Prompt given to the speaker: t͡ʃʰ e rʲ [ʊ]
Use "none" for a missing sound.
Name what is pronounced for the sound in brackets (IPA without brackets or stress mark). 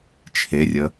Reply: ə